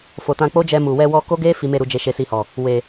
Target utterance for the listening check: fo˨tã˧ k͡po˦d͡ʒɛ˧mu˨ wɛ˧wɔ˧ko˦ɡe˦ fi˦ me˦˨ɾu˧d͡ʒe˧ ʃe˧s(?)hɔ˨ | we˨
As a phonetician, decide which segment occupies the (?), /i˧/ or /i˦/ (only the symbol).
i˧